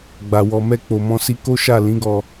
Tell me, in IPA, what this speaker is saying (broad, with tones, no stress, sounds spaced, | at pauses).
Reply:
ɡ͡b a˨ w ɔ˨ m ɛ˧ k͡p o˨ m ɔ̃˧ s i˧ k o˦ ʃ a˦˨ l ĩ˨˦ ɡ ɔ˧